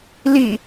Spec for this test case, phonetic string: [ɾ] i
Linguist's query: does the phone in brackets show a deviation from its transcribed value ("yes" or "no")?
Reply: yes